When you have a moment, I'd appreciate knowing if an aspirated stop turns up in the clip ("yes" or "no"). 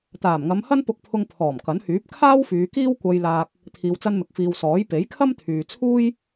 yes